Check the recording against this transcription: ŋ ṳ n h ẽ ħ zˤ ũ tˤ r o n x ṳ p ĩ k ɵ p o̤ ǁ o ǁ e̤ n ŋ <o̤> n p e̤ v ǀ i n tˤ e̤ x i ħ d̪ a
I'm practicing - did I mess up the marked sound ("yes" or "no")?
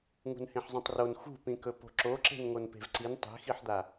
yes